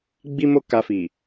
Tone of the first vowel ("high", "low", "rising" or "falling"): high